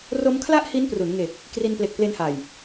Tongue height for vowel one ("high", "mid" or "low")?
mid